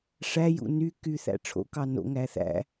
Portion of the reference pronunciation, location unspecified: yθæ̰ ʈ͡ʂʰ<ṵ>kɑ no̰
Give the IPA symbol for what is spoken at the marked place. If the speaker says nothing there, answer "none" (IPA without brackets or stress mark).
o̰